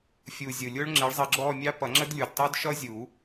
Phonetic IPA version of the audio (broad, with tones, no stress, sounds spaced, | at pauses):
fʲ u˨˩ zʲ ʊ˨˩ lʲ ʊ˦˥ ɭ ŋ͡ǁ ɪ˨˥ ɭ zˤ ə˧ ɡ͡ǁ ɔ˥˧ mʲ ɑ˦˥ p ʌ˨˩˦ ŋ͡ǁ ə˦˥ d lʲ u˨˩ d tˤ ʊ˦˥ d ʃ ʌ˦˥ zʲ u˨˩˦